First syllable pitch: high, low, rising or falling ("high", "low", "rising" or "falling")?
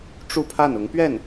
falling